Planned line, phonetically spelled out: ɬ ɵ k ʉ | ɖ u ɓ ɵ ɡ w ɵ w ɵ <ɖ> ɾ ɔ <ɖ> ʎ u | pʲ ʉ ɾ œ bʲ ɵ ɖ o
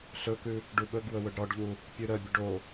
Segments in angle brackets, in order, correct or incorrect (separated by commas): correct, correct